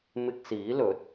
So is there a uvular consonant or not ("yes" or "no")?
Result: no